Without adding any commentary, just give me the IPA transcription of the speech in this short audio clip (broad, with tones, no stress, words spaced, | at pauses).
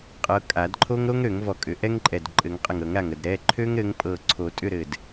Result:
qʼɤ˨˦kʼa˨˩˦dǃʰo˥ŋ ɾo˥ŋ ɾø˨˩˦ŋvɔ˧˩ kʼʏ˨˩˦ʔɛ˥ŋǃʼɛ˧˩d ǃʼɘ˨˩˦ŋqʼə˧˩ŋɾɤ˨˩˦ŋɾa˧˩ŋ ə˧˩d ɾɛ˩˧˩ ǃʰø˥ŋɾɘ˨˦ŋpʼɤ˧˩ ǀʰo˨˩˦tʼʏ˥˨ ɾɘ˧˩d